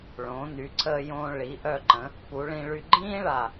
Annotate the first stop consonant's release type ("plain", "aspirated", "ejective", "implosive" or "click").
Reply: click